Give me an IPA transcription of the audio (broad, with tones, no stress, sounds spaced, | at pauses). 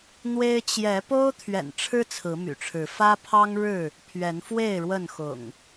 n̪ w e˦ ɪ̯ t͡ɕ j ɛ˨˦ p o˦ ʊ̯ t̪ʰ ɥ ɛ̰˨˩ n ʈ͡ʂʰ ɻ̩˦ t͡sʰ ɹ̩˨˦ m y̰˨˩ ʈ͡ʂʰ ɻ̩˨˦ f ä˦ pʰ ɑ˦ ŋ ɻ ɻ̩˥˨ | pʰ ɥ ɛ˨˦ n f w e˥˨ ɪ̯ ɻ w ə˥˨ n x ʊ̰˨˩ ŋ